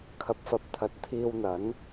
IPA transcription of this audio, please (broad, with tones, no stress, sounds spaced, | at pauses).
kʰ ɐ˧ p̚ f ɐ˧ p̚ t̪ʰ ɐ˨˥ t̚ t̪ʰ iː˧ w n̪ ɐ˨˥ n